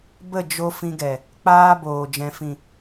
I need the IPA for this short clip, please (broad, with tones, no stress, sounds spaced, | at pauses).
b ə˦˨ d͡ʒ o˧ f ĩ˧ ɡ ɛ˨ | k͡p aː˦ b oː˨ d͡ʒ ɛ̃˨ f ĩ˨